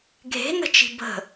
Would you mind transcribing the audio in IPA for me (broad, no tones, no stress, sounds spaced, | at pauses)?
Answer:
ɡʱ e̤ n ə̤ t͡ʃ i̤ b ə̤